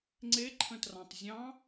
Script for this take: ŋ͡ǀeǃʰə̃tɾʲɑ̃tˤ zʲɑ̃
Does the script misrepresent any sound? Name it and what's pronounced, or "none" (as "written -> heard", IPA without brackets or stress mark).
ɾʲ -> r